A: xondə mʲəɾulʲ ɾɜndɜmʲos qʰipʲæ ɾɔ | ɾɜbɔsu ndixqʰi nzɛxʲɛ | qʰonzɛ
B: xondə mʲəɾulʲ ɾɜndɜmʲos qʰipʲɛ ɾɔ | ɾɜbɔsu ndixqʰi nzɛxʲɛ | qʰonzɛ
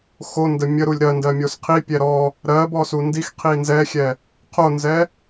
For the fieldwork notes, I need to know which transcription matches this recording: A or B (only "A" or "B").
B